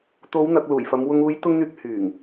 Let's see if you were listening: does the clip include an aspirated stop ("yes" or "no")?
no